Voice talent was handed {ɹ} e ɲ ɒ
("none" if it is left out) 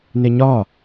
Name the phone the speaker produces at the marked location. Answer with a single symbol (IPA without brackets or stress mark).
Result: n